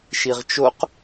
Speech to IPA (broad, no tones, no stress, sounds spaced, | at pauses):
ʃ i ʁ t͡ʃ o q